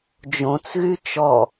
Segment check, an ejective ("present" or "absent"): absent